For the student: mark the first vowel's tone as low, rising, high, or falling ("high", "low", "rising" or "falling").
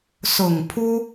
low